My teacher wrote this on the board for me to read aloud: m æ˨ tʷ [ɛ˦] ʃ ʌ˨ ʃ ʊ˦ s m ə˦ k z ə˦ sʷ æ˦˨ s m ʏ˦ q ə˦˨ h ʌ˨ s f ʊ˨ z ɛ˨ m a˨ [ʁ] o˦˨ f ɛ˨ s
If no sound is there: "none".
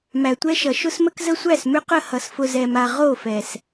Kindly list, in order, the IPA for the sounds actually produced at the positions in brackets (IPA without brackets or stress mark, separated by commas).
ɛ˦, ʁ